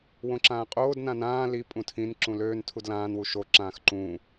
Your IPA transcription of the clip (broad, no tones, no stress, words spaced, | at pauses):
wõǁãːqʼoːd nãnãː li pʼũtʰĩn ǁũløːn tʰudlãːn wuʃo ǁãːxǃũː